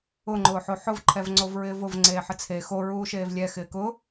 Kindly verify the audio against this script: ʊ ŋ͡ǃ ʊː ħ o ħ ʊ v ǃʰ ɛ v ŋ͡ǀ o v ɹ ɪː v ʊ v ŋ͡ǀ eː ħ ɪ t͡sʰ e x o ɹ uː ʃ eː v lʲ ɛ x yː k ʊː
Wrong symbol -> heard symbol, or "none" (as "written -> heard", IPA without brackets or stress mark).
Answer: yː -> ɪː